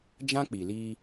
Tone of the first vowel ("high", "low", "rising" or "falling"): high